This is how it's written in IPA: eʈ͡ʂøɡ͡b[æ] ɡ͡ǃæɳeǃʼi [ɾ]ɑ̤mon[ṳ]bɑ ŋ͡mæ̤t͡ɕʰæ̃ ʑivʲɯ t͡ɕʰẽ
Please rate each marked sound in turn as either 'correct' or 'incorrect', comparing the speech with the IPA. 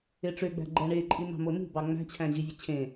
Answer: incorrect, incorrect, correct

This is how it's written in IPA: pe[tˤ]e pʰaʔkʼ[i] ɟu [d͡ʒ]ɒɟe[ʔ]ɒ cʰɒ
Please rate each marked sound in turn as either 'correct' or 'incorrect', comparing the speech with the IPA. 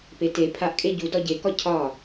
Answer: incorrect, incorrect, incorrect, incorrect

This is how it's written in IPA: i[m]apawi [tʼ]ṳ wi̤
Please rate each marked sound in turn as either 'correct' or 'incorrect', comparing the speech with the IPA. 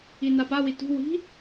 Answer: incorrect, incorrect

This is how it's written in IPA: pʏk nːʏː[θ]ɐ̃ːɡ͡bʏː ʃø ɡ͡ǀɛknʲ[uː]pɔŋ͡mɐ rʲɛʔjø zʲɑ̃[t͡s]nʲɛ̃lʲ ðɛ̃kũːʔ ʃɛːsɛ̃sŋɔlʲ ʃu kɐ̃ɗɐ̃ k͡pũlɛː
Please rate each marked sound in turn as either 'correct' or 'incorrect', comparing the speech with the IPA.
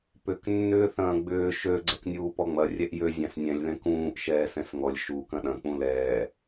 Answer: correct, correct, incorrect

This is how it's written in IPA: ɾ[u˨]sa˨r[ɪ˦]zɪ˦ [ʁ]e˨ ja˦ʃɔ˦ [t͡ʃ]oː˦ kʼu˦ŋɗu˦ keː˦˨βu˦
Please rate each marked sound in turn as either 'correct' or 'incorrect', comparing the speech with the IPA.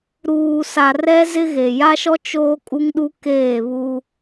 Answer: incorrect, incorrect, incorrect, correct

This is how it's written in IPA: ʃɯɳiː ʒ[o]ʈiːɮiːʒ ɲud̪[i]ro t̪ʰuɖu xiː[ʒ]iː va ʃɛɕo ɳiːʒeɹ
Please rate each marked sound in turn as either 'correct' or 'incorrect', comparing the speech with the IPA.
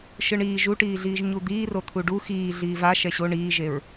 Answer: incorrect, incorrect, incorrect

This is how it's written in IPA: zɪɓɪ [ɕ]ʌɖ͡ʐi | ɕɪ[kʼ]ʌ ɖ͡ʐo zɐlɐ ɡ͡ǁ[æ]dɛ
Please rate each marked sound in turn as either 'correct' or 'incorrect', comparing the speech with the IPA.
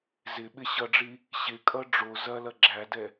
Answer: correct, correct, correct

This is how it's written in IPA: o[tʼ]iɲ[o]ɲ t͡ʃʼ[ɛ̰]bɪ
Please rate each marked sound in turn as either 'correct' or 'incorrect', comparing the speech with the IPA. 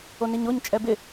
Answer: incorrect, correct, incorrect

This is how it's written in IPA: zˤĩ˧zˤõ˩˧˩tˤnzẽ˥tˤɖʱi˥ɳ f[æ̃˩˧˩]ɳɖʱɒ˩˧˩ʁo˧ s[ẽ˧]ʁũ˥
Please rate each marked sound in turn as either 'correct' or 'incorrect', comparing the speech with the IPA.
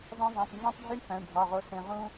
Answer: correct, correct

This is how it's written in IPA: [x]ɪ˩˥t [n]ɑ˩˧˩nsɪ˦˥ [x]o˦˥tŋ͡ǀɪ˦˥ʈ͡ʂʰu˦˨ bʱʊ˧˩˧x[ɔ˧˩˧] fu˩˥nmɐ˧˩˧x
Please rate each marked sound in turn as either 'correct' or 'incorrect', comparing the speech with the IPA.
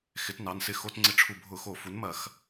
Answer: correct, correct, correct, incorrect

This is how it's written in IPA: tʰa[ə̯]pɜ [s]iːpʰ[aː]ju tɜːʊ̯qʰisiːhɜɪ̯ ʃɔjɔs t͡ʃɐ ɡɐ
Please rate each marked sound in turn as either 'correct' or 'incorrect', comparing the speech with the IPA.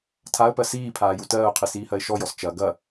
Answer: correct, correct, correct

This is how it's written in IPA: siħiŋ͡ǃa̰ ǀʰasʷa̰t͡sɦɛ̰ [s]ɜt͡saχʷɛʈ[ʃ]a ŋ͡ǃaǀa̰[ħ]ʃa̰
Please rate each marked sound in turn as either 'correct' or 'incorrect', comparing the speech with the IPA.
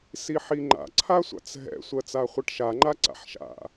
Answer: incorrect, correct, correct

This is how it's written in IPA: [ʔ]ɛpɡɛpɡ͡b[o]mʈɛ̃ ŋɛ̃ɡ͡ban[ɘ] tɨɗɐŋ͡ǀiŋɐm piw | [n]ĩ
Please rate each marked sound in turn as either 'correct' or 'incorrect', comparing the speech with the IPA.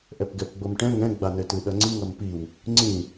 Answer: correct, correct, correct, incorrect

